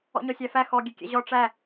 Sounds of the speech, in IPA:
ɔ̰ ɲ ɔ sʲ æ f æ x ɔ ɡʲ e kʲ ɛ̰ ʑ ɔ ʈ͡ʂ æ

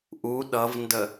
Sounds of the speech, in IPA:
ʔ u ɗ ʌ v n d ə

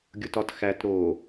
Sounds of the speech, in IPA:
ɡʲ o t ɒ t x æ t ɾ o

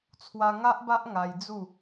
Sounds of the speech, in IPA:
t͡sʰ w a˧ ŋ a˦ ʔ b a˦ ʔ ŋ a˧ j d͡z u˥˧

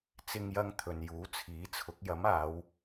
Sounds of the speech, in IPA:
t͡s ɪ˧ ŋ j ɐ˧ ŋ t̪ʰ ɵ˨ n j uː˨˥ t͡sʰ iː˨˥ t͡sʰ ʊ˨˥ k̚ j ɐ˨˥ m aː˨˧ w

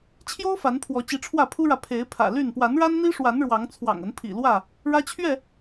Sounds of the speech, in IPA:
t͡ɕʰ j o˦ ʊ̯ f a˨˦ n pʰ w ɔ˨˦ t͡ɕ i˨˦ ʈ͡ʂʰ w ä˥˨ pʰ u˦ ɻ ä˨ pʰ e˨˦ ɪ̯ pʰ ä̰˨˩ l y˥˨ n p w a˨˦ n ɻ a˦ n n̪ i˦ ʂ w a˨˦ n ɻ w ɑ˨˦ ŋ t͡sʰ w ɑ̰˨˩ ŋ ə˨˦ n pʰ ḭ˨˩ l w ä˥˨ | ɻ ä˦ t͡ɕʰ ɥ ɛ˥˨

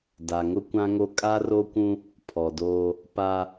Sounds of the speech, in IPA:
d a˨ ŋ ʊ˦ kʷ ã˦ ŋ o˦ kʼ a˦ r o˦ kʷ ũ˦ | pʰ ɔ˨ d oː˦ | p a˦

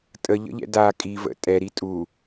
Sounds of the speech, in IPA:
tʼ ə ʎ ə̰ ʎ ɛ̰ d a kʼ i v ə̰ tʼ ɛ ɾ i tʼ u

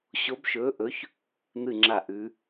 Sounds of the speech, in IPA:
ɕ o˧˥ b ʃ ɵː˧˥ ʔ ɵ˧˥ ç | n̪ ɨ˥˨ ŋ͡ǁ a˥˨ ʔ ʉ˧˥

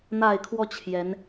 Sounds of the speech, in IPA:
n̪ a˨˩ ɪ̯ kʰ w ɔ˥˩ t͡ɕʰ j ɛ˧˥ n

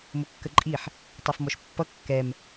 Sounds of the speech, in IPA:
m ʊ kː ə ǃʼ i ħ | tˤ ʌ f m ɔ ʃ pː ʌ kː ɛ m

